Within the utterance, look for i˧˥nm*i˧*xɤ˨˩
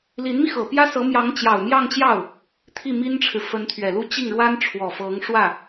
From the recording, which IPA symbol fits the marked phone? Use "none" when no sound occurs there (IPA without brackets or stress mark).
i˧